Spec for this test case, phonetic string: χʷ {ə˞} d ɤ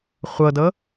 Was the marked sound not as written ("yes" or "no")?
yes